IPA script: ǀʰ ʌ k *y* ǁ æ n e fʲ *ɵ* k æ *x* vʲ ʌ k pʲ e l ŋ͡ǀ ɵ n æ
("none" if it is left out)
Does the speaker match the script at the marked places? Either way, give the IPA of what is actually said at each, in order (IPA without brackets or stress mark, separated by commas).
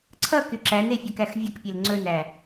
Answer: y, ɵ, x